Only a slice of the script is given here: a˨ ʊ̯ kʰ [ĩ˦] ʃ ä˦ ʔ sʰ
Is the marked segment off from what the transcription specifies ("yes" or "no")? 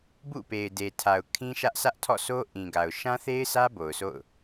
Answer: no